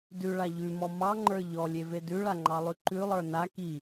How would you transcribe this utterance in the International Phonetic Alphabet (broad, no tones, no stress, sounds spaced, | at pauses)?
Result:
d ʉ ɭ a ʎ ʉ m ɔ m ɑ ŋ͡ǃ ə˞ ʎ ɔ lʲ e v e d ʉ ɭ a ŋ͡ǃ ɑ lˠ ʉ ǃ ʉ lˠ ə˞ n a k i